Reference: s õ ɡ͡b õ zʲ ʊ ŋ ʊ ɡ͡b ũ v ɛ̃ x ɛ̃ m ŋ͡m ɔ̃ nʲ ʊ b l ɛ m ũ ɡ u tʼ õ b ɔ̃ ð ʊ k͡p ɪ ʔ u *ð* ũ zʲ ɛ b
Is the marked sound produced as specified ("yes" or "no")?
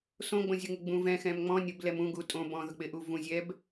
no